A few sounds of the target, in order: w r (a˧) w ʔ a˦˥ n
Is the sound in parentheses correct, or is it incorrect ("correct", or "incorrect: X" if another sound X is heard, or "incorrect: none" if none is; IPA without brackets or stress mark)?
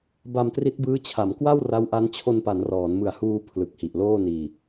incorrect: a˦˥